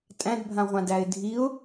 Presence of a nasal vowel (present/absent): present